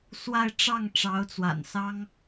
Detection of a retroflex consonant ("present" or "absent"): present